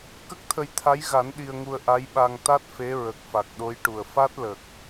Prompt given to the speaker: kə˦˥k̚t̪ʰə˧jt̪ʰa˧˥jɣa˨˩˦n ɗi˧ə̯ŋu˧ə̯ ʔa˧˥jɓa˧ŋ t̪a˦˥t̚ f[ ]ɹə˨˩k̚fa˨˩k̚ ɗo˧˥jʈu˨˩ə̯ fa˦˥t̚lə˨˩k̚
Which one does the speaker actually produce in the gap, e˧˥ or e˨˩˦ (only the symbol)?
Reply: e˧˥